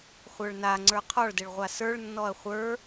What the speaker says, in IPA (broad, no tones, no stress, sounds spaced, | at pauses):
χʷ ə˞ ɭ n a ŋ͡ǀ ə˞ qʰ ɔ ɭ d ɘ ɭ ʁʷ a s ə˞ ɭ nː ɔ ɐ̯ χʷ ə˞